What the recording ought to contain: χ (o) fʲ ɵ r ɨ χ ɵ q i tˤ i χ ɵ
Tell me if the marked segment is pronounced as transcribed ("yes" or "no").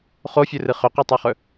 yes